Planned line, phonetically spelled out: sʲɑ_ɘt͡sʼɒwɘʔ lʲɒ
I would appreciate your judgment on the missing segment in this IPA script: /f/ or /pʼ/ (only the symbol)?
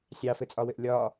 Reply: f